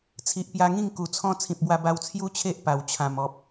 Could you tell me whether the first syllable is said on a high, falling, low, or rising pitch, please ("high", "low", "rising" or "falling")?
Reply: low